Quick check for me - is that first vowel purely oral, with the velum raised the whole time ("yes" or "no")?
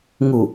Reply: yes